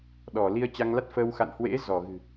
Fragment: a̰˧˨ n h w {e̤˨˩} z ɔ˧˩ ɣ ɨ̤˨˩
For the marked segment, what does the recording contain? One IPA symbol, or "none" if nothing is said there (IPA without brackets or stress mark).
ḛ˧˥